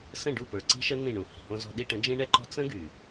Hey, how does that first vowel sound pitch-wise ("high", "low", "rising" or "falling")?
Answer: falling